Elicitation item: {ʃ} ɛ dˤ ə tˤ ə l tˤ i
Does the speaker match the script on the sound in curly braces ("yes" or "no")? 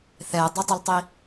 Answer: no